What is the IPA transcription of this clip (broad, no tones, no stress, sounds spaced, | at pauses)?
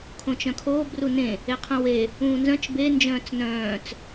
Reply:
kʰ õ t͡ʃ œ̃ kʰ oː b r u n ẽ | e qʰ ũ w e | ũː n z œ̃ t͡ʃ b e n d͡ʒ œ̃ː t͡s n œ̃ː t͡s